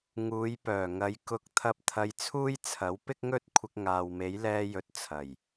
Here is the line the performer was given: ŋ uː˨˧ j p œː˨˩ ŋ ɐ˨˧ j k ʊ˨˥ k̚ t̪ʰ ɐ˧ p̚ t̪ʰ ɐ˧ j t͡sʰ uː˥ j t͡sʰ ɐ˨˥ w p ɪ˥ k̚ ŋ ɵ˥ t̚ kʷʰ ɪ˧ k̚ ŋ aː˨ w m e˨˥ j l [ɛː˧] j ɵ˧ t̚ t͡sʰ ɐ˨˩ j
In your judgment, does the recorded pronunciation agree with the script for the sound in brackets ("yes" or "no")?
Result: yes